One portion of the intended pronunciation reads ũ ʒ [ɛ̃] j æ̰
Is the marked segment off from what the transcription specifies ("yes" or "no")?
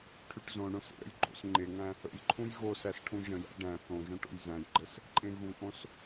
yes